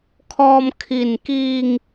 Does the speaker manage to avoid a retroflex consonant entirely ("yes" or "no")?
yes